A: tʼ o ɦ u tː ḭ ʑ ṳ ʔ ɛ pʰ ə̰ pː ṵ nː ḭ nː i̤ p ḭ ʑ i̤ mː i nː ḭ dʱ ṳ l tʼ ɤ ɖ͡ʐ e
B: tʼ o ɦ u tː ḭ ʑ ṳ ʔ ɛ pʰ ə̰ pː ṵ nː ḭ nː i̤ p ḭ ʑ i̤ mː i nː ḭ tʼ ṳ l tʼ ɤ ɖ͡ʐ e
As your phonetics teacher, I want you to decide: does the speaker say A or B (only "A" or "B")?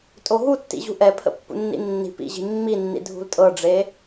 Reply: A